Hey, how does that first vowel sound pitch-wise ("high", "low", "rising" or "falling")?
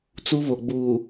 high